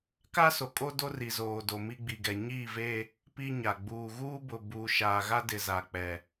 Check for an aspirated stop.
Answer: absent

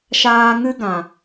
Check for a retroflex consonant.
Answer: absent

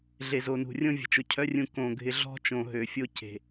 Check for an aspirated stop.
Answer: present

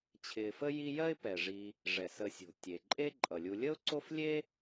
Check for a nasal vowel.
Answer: absent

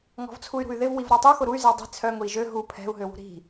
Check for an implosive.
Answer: absent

